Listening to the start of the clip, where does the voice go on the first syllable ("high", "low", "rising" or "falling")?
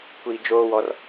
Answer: low